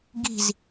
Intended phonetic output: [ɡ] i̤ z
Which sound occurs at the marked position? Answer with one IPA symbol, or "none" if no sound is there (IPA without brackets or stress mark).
ɡ